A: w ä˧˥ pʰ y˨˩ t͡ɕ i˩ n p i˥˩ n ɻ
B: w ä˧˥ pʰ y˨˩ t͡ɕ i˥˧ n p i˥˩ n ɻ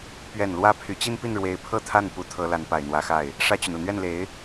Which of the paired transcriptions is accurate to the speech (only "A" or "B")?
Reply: B